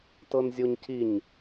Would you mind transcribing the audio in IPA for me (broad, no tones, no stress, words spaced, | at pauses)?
tɤnzʲoɲciɲ